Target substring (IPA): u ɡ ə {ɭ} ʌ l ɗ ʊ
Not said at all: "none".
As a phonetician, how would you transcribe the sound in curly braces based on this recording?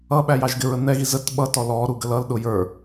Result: l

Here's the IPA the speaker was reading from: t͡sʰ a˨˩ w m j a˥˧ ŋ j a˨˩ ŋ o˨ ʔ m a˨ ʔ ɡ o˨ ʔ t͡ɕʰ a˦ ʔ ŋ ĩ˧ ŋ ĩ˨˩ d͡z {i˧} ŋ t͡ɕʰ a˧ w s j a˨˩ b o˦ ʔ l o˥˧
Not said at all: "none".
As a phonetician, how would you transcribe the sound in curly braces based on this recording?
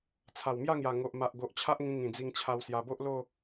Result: i˧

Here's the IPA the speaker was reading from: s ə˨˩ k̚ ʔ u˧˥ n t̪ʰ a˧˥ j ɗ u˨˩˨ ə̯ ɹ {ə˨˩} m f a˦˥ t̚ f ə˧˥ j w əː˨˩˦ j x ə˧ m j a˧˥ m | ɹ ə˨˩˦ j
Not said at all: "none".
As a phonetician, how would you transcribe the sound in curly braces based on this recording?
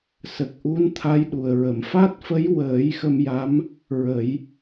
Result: ə˨˩˨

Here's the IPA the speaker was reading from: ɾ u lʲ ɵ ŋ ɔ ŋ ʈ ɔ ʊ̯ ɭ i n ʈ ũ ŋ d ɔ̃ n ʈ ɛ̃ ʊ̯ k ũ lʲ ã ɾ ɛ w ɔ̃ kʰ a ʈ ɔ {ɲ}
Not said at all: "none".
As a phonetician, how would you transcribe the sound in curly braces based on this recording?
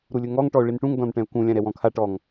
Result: ŋ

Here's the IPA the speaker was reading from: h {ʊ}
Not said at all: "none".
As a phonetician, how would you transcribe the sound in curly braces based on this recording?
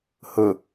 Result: ʊ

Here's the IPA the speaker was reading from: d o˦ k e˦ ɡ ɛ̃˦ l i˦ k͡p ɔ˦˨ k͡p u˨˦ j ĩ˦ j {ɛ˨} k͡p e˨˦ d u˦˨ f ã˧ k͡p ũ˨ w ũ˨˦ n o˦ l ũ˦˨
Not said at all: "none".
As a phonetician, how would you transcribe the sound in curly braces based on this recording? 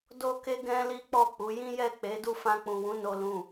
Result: ɛ˦˨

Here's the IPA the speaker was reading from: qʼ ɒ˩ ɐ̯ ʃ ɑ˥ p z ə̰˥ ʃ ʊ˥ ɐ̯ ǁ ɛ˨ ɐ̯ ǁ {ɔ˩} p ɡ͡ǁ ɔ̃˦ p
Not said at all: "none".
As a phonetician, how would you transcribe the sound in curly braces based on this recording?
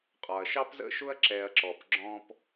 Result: ɔ˩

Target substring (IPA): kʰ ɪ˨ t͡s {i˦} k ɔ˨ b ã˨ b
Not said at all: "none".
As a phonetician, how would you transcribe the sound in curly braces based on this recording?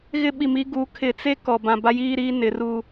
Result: e˦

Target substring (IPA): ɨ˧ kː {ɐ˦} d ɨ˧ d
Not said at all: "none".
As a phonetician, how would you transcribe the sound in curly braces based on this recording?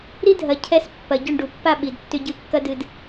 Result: ɐ˦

